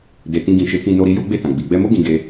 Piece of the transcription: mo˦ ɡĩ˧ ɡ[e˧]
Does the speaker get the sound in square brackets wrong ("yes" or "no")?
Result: no